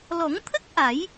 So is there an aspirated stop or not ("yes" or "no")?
yes